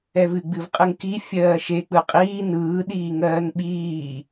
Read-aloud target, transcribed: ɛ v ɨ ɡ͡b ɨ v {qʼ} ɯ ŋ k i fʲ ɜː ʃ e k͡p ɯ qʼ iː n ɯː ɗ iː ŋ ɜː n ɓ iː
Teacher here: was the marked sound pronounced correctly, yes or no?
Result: yes